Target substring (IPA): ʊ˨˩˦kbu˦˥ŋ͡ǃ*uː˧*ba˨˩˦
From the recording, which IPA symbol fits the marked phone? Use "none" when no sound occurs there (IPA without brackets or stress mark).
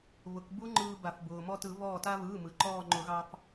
ɯː˧